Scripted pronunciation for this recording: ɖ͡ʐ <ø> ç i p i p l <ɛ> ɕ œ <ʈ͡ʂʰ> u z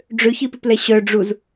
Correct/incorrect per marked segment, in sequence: correct, correct, incorrect

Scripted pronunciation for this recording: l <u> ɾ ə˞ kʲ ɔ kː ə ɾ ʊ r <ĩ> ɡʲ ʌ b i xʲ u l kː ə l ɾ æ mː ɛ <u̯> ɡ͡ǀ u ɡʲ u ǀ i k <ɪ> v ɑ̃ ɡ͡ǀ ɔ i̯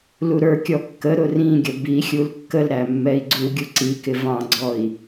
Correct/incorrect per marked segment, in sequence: correct, correct, incorrect, correct

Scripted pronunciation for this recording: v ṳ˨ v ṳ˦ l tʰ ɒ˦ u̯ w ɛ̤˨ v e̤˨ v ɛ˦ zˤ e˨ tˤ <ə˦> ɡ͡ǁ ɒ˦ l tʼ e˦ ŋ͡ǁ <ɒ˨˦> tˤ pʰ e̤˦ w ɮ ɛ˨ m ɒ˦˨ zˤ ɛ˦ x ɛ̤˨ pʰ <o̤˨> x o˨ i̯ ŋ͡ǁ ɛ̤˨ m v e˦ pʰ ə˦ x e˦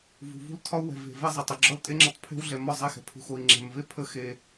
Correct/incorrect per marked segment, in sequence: incorrect, incorrect, incorrect

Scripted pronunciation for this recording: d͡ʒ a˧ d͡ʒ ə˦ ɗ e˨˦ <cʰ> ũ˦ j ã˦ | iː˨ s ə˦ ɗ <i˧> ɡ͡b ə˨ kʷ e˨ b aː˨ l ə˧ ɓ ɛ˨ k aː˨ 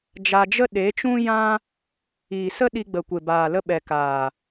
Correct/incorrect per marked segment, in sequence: incorrect, correct

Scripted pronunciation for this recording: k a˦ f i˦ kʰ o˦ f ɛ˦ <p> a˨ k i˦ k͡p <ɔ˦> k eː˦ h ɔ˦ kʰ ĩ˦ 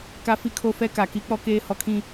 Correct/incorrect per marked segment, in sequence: incorrect, correct

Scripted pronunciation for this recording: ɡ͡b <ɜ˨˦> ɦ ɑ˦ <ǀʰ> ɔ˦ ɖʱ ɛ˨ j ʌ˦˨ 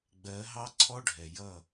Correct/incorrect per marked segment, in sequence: correct, correct

